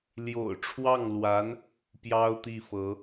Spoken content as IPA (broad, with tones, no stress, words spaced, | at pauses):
ljo̰˨˩ʊ̯ʈ͡ʂʰwɑ˥˩ŋlwa˧˥n | pjɑ˥ʊ̯t̪i˥˩fɤ˧˥